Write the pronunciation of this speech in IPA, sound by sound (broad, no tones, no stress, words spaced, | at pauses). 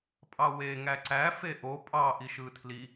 pʼɑwe ŋæǀæ feʔo pʼɑ ʔiʃɯːtʰli